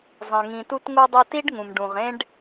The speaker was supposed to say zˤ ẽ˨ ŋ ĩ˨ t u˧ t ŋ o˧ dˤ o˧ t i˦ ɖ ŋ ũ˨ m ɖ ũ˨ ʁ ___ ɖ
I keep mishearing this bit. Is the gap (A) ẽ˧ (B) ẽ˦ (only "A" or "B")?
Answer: B